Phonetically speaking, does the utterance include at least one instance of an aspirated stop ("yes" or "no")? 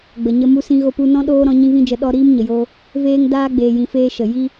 no